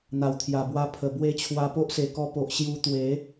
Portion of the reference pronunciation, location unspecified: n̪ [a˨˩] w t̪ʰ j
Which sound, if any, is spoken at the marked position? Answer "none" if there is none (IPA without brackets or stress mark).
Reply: a˨˩